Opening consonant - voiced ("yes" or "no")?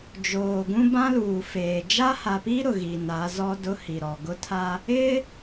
yes